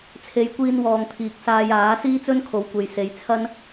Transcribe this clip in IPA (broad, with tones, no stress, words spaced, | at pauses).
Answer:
t͡sʰe˨˧jkʷiː˧nwɔː˨ŋ t̪ʰiː˨k̚saː˧j aː˨˥ siː˥t͡sɵ˥nkʰo˨˥wkʷe˨j se˨˧jt͡sʰɐ˥n